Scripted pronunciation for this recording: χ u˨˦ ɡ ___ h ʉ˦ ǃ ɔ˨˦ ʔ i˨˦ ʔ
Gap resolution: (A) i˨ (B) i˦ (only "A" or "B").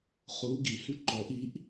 A